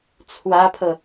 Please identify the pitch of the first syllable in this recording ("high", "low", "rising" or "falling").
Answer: high